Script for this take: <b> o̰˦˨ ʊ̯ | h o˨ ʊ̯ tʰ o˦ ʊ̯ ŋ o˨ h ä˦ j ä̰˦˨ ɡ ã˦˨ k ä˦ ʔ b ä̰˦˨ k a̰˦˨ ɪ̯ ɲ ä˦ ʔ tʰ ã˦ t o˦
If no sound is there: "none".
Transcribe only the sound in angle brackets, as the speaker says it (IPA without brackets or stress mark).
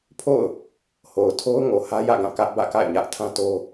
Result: pʰ